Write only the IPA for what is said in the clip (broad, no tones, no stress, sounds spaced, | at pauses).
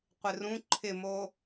qʷ ɪ r ũ ǃʰ ɪ m o